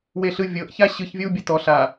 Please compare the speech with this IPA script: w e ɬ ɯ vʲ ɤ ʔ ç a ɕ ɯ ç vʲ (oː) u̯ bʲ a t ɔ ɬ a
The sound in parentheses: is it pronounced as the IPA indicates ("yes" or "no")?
no